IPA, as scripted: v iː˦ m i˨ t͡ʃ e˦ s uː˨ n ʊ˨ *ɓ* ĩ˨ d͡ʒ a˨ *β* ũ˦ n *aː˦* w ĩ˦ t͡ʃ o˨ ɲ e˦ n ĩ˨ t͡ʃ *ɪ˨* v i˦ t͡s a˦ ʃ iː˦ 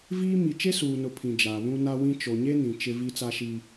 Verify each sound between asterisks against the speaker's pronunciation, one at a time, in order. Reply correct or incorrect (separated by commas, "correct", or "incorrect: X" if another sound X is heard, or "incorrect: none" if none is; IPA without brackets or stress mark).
incorrect: pʰ, correct, incorrect: a˦, incorrect: ɪ˦